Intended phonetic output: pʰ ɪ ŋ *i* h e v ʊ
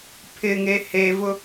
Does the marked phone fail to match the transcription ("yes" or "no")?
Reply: yes